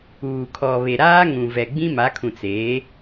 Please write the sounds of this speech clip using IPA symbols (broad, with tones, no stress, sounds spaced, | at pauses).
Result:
uː˨ kʰ ɔ˨ β e˨ ɾ aː˦ ŋ ũ˨ v ɛ˨ ɡ͡b ĩ˦ m a˨˦ kʰ ũ˨ t͡s eː˨˦